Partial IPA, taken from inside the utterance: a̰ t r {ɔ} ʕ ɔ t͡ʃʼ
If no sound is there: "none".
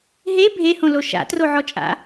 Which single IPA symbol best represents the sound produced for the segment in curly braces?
o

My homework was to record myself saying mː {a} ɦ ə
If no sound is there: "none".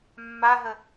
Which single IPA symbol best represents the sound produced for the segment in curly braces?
a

